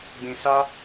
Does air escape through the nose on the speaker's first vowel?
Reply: yes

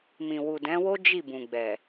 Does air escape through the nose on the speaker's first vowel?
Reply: yes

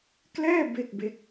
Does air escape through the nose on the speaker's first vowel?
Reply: no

